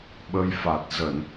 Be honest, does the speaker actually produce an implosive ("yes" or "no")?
yes